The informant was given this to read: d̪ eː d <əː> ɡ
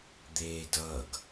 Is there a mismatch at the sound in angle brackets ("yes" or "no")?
yes